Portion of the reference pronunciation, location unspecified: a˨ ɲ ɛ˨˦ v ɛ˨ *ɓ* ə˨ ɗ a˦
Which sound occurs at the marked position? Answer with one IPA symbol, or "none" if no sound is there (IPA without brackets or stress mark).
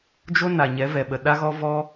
ɓ